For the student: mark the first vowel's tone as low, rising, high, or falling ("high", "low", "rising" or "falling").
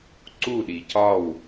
falling